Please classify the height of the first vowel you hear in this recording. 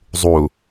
high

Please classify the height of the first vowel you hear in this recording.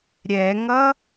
mid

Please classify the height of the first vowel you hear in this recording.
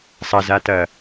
low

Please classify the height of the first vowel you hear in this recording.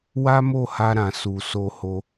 low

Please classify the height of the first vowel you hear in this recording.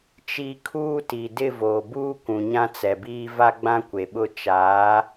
high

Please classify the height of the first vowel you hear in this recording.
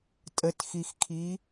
mid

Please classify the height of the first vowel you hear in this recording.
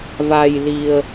low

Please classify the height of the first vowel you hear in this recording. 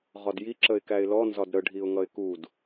low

